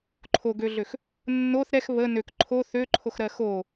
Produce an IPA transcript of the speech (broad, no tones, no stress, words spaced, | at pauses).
ǃʰoɡøɮøx | nːoθ ɾɛx βə nøk ǃʰo θøǃʰoxɾɜ xo